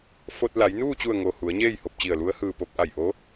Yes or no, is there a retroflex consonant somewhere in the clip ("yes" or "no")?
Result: no